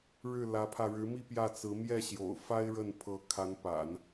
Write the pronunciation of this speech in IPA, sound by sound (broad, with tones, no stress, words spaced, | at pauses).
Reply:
ɻɻ̩˥˩lä˧˥pʰä˧ ɻɻ̩˧˥mi˥˧ pjä˥˩t͡sɹ̩˧˥ mjɛ˥˩ɕjo̰˨˩ʊ̯ fa˥ɪ̯ɻə˥˩n pʰɤ˧˥kʰa˧˥npa̰˨˩˦n